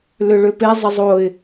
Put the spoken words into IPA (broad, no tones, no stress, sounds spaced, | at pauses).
l ʏ ɭ ʏ p e zˤ ə zˤ o ɪ̯